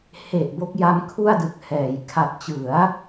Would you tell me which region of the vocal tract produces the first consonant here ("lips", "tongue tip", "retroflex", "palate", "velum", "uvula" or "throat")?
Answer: throat